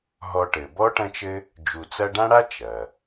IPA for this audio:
ɦ ɔ˨ ʈ ɘ˩ b ɔ˥ ʈ ɐ̃˦ t͡ʃ ɘ˦ | d͡ʒ u˨ t͡s ɐ˦ ɖ ã˥ ɽ a˥ t͡ʃ ɐ˩

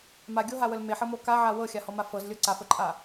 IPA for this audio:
m a ɡʲ o ɦ a w ə l m e ħ ɤ m o k a ʕ a w ɤ xʲ a h ɔ m a f ɤ z lʲ ɤ ǀ a f ə ǃʼ a

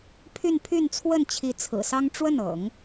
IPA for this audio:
pʰ y˥˧ n pʰ y˥˧ n t͡sʰ w ə˥˩ n t͡ɕʰ i˧˥ t͡sʰ ɹ̩˨˩ s ɑ˥ ŋ ʈ͡ʂ w ə˥˩ n ɤ̰˨˩˦ ŋ

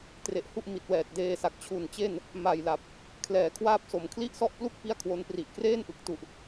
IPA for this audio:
t r e˨˩ ʔ h u˥˩ ʔ m i˨˩ t̚ w ɛː˨˩ t̚ d eː˧ s a˨˩ k̚ t͡ɕʰ u˨˩ n t͡ɕ e˥˩ n | m a˨˩ j l a˨˩ p̚ | kʰ l ɛː˨˩ kʰ w aː˥˩ p̚ s o˨˩ m kʰ l i˥˩ ʔ s ɔ˥˩ ʔ p l u˥˩ k̚ p i˥˩ a̯ kʰ w o˦˥ n p r i˨˩ ʔ k r eː˥˩ n ʔ ɯ˨˩ k̚ t u˨˩ ʔ

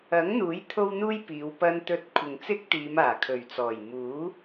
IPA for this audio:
ɐ˨˥ ŋ n̪ uː˨˥ j t̪ʰ o˥ w n̪ uː˥ j p iː˨˧ w p ɐ˧ n t̪ ɵ˧ t̚ kʷʰ ɪ˨ ŋ t͡s ɪ˥ k̚ t̪ iː˨˧ m aː˨˩ kʰ ɵ˨˩ ɥ t͡s ɔː˨˩ j m uː˨˥

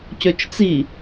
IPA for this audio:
c ø t͡ʃ t͡s i

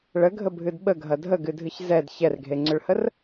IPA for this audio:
ɭ ə ɡʱ ə bʱ ɨ d ɓ ə ɡʱ ɐ dʱ ə ɡ ɨ dʱ ɨ ç z ɛ d ç ɛ r ɡʱ e ŋ͡ǀ ʏ ɭ h ə r

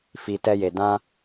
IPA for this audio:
f i˨ t ɛ˦ j e˨ d ã˦

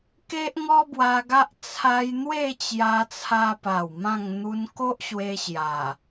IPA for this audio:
k e˦ ʔ ŋ ɔ˦ b w a˧ ɡ a˦ ʔ t͡sʰ a˧ j n̪ w e˥˧ t͡ɕ j a˧ t͡sʰ a˧ p a˨˩ w m ã˥˧ ŋ n̪ u˧ n k o˦ ʔ ɕ w e˧ ɕ j a˨˩

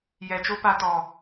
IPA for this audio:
j ɛ˨ t͡ʃ o˦ p a˧ t ɔ˨

